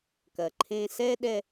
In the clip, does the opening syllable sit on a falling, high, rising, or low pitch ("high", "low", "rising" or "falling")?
low